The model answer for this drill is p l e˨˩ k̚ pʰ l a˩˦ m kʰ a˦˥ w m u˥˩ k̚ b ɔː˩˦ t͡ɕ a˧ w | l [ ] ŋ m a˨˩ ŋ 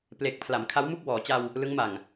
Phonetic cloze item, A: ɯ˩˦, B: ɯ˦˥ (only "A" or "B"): B